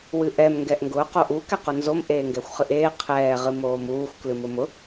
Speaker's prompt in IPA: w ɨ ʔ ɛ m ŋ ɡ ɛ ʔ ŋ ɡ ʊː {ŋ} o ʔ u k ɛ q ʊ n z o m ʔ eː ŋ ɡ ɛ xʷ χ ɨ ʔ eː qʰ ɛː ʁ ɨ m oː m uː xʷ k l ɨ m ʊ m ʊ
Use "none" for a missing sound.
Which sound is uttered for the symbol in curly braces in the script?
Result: q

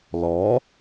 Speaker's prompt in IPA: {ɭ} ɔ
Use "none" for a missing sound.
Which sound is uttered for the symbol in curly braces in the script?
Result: l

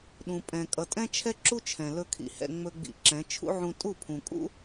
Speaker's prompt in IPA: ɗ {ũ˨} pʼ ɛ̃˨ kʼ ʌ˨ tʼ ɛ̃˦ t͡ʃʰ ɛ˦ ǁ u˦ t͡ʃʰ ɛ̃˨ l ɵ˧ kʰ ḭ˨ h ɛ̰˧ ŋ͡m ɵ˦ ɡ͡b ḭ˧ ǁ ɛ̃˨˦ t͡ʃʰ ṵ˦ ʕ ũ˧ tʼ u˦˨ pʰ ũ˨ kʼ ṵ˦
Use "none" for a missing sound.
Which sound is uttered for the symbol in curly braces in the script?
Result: ũ˨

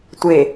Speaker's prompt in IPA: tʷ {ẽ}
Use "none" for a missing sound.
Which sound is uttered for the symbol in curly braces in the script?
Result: e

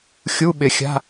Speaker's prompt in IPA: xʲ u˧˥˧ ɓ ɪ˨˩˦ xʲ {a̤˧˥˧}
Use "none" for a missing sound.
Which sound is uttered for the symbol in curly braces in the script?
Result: a̤˧˥˧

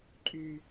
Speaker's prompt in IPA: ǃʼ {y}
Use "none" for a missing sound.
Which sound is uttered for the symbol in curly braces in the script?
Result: y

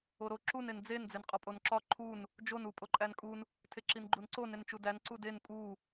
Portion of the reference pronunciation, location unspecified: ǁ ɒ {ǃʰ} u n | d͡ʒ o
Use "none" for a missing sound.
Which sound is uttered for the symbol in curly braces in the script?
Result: ǃʰ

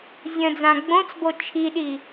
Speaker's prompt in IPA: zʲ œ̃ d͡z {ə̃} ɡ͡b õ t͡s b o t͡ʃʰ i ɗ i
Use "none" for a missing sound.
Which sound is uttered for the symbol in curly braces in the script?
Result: ã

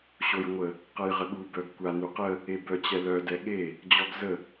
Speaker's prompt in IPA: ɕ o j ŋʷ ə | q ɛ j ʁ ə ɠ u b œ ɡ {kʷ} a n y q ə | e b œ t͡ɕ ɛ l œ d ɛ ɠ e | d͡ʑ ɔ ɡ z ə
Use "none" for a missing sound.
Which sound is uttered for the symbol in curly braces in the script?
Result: kʷ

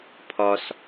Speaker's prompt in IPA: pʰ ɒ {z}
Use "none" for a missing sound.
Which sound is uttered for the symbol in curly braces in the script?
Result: s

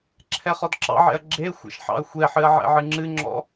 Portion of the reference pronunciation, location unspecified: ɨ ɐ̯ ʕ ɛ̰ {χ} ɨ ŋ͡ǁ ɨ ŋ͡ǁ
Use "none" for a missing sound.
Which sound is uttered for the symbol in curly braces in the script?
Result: ʕ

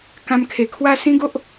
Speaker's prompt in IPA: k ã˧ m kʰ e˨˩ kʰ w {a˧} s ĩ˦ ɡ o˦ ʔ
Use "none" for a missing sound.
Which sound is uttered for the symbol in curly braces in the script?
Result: a˥˧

